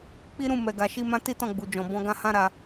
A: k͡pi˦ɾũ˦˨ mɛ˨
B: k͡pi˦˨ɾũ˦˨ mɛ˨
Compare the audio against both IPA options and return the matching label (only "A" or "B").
A